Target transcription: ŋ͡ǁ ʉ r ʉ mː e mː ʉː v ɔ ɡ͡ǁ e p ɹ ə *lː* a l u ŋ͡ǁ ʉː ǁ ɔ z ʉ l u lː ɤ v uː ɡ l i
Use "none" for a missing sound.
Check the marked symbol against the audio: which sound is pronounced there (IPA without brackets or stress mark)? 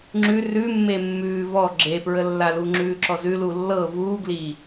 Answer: lː